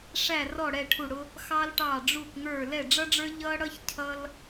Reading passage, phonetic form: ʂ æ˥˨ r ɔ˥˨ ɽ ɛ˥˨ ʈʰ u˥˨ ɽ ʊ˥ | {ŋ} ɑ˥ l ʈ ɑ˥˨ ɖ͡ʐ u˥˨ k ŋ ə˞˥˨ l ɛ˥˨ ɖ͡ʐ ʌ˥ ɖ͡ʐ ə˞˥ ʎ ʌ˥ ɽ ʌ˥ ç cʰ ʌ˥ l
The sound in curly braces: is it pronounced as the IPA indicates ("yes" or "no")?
no